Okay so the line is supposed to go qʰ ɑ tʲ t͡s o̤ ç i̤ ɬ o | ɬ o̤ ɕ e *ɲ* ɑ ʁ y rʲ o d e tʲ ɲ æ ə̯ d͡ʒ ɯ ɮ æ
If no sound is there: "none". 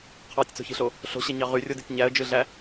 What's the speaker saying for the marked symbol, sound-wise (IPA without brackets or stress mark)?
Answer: ɲ